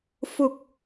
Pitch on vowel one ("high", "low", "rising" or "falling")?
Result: low